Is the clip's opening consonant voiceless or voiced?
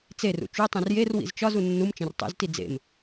voiceless